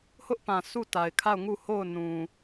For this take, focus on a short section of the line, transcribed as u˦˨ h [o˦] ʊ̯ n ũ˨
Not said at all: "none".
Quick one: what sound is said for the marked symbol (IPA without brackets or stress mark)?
o˦˨